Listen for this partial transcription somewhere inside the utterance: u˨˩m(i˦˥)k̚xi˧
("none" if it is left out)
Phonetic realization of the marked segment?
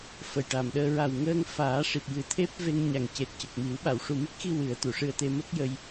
i˦˥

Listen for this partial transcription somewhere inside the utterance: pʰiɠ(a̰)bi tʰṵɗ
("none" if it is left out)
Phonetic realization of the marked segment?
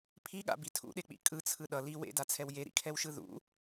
a̰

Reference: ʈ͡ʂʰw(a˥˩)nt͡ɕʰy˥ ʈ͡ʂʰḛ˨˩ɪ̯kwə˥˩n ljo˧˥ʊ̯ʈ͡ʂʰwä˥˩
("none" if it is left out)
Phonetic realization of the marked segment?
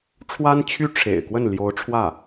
a˥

